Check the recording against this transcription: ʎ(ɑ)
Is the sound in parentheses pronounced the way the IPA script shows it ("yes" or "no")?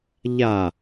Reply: no